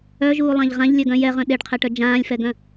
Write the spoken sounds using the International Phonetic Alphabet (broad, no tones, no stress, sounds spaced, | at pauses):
œ ʒ uː lˠ ã ʎ ʁ ã ʎ lʲ œ ɡ œ̃ j ɛ ʁ œ̃ ɗ e ɖ qʰ ɛ ʈ œ d͡ʒ ãː lʲ f ɛ ɡ œ̃